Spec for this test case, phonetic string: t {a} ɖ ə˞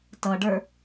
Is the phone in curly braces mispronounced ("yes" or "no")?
yes